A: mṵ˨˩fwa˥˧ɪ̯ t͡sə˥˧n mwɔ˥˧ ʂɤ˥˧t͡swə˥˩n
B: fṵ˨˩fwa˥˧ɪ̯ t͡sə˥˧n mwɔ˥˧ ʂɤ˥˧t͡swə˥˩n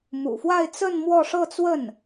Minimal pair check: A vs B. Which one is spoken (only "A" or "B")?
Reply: A